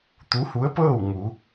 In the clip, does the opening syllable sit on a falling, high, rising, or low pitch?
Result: rising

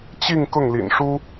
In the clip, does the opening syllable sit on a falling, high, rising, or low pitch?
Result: falling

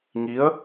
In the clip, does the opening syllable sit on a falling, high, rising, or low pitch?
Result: rising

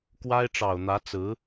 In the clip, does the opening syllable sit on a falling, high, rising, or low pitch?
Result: high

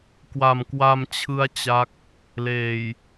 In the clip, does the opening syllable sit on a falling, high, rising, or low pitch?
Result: low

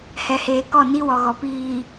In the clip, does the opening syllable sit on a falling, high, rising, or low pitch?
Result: low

